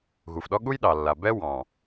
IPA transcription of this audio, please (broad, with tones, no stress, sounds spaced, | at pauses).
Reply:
ɣ u˨ f ɗ ɔ˦ ɠ u˦ j ɗ ɑ˨ lː a˨ b ɛ˦ w ɑ̃˨